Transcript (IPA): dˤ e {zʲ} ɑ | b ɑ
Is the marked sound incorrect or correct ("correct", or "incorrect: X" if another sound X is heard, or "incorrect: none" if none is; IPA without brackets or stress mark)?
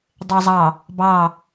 incorrect: zˤ